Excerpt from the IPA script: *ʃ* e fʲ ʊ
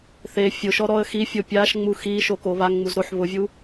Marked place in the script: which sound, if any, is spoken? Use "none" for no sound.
θ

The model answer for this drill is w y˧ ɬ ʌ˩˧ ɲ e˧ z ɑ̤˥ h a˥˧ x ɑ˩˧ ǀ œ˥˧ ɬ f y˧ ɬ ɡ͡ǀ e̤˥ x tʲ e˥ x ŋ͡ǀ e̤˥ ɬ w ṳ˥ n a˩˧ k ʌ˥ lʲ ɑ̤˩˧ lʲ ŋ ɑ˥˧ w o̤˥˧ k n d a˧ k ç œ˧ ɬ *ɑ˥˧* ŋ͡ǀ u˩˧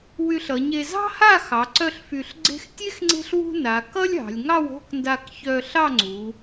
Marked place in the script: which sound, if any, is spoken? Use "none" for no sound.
ɑ˥˧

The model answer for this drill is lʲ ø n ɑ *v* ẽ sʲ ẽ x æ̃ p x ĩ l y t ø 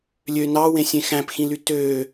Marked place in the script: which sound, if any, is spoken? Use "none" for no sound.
w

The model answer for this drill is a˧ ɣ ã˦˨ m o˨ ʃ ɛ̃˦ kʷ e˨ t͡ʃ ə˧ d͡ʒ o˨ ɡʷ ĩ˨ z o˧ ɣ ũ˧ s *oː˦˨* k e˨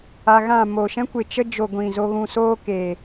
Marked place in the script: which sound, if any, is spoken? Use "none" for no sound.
oː˦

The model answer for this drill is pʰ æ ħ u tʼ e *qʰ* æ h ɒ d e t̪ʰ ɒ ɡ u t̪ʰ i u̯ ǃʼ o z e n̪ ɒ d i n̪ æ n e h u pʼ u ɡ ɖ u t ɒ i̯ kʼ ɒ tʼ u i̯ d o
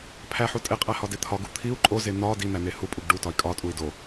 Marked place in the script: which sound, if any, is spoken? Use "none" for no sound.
qʼ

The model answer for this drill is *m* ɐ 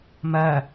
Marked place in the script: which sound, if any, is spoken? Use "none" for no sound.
m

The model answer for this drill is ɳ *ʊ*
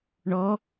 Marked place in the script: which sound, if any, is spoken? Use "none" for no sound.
ɔ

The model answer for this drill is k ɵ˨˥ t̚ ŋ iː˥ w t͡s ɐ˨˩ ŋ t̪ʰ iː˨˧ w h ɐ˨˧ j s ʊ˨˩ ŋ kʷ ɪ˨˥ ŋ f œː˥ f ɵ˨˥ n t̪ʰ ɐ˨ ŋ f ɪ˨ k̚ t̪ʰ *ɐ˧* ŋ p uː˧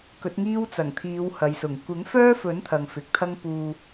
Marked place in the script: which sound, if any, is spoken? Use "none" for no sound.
ɐ˥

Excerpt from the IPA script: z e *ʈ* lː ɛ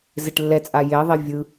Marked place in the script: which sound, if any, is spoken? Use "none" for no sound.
ʈ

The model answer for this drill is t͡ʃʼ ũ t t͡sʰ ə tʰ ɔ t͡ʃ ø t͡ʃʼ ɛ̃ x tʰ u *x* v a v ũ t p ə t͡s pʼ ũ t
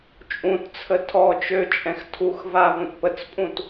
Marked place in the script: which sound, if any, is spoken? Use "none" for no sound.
x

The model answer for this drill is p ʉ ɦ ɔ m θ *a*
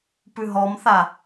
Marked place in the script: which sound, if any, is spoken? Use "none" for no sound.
a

